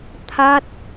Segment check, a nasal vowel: absent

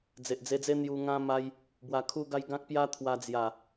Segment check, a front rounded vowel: absent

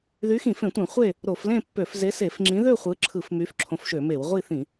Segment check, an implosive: absent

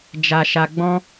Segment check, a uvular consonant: absent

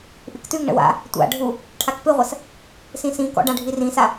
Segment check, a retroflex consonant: present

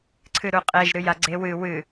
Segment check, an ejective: present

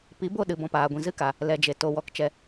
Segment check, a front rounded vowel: absent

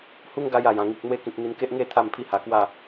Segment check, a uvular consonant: absent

